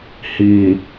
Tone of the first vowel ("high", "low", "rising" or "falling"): low